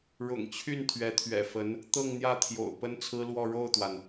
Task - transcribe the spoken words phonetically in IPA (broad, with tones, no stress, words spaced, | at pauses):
ɻʊ̰˨˩ŋt͡ɕʰy˥˩n t̪ʰɥɛ˧˥t̪ʰɥɛ̰˨˩fə˧˥n | t̪ɤ˥˧ŋn̪jä˥˩t̪ʰjo̰˨˩ʊ̯ pə˥nt͡sʰɹ̩˥lwɔ˥˧ ɻo˥˩ʊ̯t̪wa˩n